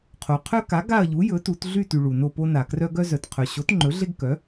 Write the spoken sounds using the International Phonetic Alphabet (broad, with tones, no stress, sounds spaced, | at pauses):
qʰ o˩ qʰ œ˦ k a˩˥ ɡ a˦˨ ɐ̯ ʎ u˩˥ j ɵ˩˥ t u˩˧ t ɮ y˦˨ t y˩ ɭ u˩ n o˦˨ p o˦ n a˩ k r œ˦ ɡ œ˦ z œ˩ t qʰ œ˩ ɕ o˩˥ t ŋ͡ǃ ɵ˩˥ ɮ e˦ ɡ k œ˩˥